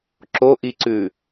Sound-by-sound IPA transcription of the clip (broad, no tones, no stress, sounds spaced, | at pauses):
ǁ o ʔ i ǀ ʉ